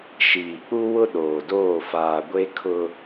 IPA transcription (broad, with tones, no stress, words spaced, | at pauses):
ʃiː˨k͡pu˦wʊ˦ ɗoː˨doː˦˨ faː˨ ɡʷe˦kʰʊ˦